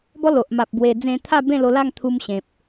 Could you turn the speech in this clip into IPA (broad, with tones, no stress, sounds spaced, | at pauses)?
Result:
b ɔ˦ l o˨ ʔ m a˨ p̚ b w e˧ d͡z ẽ˧ t̪ʰ a˥˧ b ẽ˥˧ l o˧ l a˥˧ ŋ t̪ʰ u˧ m ɕ ẽ˨ p̚